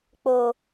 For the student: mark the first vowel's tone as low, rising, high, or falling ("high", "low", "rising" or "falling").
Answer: low